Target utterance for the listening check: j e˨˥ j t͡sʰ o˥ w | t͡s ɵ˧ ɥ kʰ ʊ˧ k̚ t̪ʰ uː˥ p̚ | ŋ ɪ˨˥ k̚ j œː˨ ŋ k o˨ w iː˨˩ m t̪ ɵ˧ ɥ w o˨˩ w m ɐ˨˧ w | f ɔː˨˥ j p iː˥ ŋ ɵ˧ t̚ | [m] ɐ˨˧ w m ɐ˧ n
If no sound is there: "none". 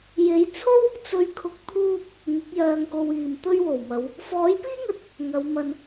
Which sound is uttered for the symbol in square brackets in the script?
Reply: ŋ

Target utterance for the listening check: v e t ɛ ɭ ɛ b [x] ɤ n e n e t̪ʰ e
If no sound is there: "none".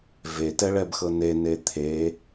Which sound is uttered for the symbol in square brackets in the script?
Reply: x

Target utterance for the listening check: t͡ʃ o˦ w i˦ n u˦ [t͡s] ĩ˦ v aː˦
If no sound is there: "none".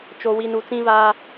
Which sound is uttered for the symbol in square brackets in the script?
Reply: t͡s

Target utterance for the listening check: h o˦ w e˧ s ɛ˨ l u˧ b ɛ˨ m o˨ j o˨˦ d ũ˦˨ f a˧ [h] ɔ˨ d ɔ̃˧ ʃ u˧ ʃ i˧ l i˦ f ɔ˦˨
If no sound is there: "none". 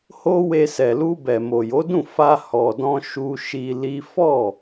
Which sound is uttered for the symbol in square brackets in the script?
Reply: h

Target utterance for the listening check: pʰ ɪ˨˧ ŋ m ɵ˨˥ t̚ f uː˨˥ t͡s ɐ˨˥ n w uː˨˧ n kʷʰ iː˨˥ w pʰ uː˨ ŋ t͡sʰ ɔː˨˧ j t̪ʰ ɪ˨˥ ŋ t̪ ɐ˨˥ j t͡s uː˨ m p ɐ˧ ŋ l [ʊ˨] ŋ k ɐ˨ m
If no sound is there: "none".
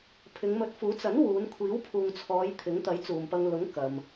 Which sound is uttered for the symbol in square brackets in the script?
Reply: ʊ˨˥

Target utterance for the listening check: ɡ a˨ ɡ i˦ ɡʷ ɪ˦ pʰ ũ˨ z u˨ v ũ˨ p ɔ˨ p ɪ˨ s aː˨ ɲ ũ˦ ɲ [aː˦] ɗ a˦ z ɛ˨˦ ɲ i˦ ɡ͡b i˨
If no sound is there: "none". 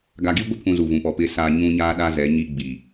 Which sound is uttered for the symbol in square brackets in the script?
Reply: aː˦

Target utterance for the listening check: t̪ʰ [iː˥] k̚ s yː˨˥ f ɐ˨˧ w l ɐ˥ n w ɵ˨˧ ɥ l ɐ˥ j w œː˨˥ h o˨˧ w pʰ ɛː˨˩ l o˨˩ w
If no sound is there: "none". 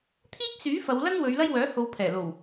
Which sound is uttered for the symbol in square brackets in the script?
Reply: iː˥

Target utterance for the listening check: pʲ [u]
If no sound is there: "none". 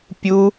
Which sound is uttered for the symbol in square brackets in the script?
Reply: u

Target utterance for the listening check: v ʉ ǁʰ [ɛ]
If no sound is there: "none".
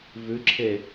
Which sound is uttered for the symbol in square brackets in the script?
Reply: e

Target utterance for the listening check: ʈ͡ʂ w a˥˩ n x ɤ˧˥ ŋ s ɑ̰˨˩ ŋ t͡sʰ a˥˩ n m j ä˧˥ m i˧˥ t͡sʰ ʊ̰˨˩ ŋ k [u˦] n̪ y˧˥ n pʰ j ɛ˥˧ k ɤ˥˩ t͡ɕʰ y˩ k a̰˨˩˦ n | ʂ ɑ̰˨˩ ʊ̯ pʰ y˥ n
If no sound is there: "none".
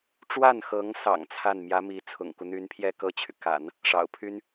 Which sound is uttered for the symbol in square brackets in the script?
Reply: u˦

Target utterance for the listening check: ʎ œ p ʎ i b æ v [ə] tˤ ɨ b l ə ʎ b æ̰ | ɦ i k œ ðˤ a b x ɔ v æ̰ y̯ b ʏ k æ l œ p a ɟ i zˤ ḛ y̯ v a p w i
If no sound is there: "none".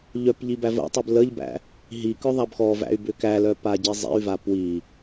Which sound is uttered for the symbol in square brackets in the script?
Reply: ə̰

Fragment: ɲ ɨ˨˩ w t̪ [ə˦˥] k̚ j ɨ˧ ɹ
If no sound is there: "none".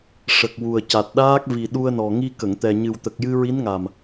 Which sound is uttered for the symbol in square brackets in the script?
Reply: ə˨˩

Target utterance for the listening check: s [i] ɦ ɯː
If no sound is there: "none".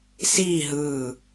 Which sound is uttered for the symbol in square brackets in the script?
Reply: iː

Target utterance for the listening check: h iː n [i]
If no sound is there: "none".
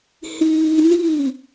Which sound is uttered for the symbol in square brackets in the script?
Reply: i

